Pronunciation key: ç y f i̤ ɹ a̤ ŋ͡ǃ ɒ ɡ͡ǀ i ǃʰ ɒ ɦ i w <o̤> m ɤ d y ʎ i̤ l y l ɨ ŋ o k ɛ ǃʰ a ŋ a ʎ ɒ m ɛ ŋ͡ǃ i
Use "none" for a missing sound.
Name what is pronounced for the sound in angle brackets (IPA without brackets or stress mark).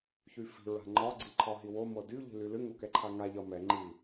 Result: o